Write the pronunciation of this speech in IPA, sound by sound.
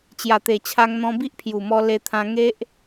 t͡ɕ j a˨˩ t̪ e˨˩ t͡ɕʰ a˧ ŋ n̪ ɔ̃˧ b i˦ ʔ pʰ j u˨˩ m ɔ˧ l e˧ t̪ʰ ã˧ ŋ e˦ ʔ

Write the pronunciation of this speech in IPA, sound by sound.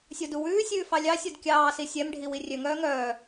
sʲ o d u w ʉː sʲ ʉː f ɑ lʲ ɑ sʲ o d kʲ ɑː s i sʲ ɛ m ɖʱ i w i rʲ ø ŋ œː ŋ œː

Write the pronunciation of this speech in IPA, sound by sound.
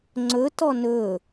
ŋ͡ǀ ɵ t ɔ n ɵ

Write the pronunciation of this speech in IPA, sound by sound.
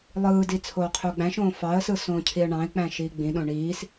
lˠ ɯː d i t͡sʰ oː qʰ ø ʊ̯ ɡ͡b æ̃ ʃ õː f ɑ ə̯ s ɯ s õː cʰ i ə̯ ɳ ɑ̃ ɪ̯ k͡p æ̃ ʃ iː ɡ͡b ĩ ɗ õ ɳ iː s

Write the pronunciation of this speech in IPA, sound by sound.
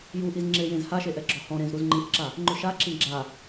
j u ʔ i z ŋ͡ǁ e j ẽ z h a ʃ e ʔ ɛ ɡ͡ǁ ɔ h ɔ̃ ɾ ẽ z ɾ u z ŋ͡ǃ ĩ ʔ ǁ a | ŋ͡ǃ ʊ ʃ a ǁ ĩ ɡ͡ǁ a

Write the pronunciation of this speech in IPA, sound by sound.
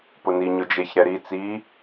p ʊ n i ɲ ʊ d͡ʒ e ç ɾ ɛ ɾ i t͡s i

